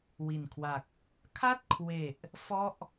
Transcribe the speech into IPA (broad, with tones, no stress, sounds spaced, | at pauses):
w i˨˩ n kʰ w a˨˩ k̚ | kʰ a˥˩ t̚ kʰ w e˨˩ ʔ | f ɔ˥˩ ʔ